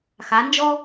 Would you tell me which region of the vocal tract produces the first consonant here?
velum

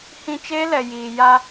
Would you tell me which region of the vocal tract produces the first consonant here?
throat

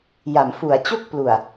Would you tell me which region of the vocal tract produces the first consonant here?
palate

